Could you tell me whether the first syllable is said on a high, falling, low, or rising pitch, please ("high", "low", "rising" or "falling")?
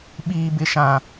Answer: high